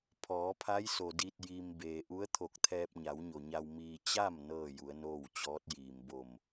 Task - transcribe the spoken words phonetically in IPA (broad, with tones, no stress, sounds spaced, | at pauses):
pʰ ɔː˩˧ pʰ a˧˥ j s o˩ d i˧ t̚ j i˧ m b eː˩ ʔ u˧˥ ə̯ t̪ʰ o˧˩ k̚ t̪ʰ ɛː˧ p̚ ɲ a˩˧ w ɲ o˩ ɲ a˧ w m iː˧ t͡ɕ a˥˨ m n ɤː˥˨ j u˩˧ ə̯ n oː˥˨ w t͡ɕ ɔː˧˥ t̚ j iː˩ m b o˧˩ m